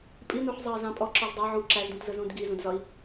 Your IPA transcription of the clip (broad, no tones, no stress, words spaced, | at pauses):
pʼinuħzˤɑi̯ zɑ̃pʼɔ ǁɔzdˤɑ ʕu ǁæzdũtzə zũdɡizũdzɒi̯